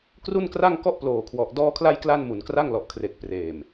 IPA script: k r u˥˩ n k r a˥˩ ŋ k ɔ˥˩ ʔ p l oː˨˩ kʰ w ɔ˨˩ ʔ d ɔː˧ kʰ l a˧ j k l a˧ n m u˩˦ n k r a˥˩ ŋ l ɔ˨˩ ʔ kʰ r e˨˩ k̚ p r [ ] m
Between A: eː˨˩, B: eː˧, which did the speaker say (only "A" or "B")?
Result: A